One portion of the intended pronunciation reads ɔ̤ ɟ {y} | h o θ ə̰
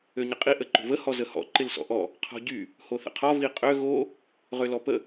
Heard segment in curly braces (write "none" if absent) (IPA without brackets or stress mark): y